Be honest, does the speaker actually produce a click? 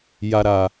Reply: no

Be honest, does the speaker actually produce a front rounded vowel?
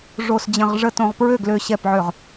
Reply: yes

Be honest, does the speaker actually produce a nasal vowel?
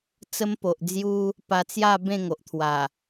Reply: yes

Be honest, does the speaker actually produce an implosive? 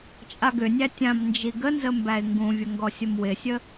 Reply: no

